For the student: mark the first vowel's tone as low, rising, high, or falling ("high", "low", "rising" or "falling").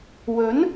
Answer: rising